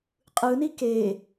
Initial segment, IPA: qʼ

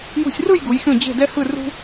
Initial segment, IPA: j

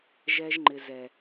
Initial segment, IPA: ʒ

